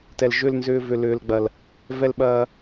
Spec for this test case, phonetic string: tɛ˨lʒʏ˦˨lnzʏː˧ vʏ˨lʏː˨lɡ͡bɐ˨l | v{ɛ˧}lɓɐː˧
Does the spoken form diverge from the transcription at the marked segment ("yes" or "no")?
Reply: no